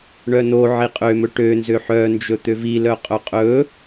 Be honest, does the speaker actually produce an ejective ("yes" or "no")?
yes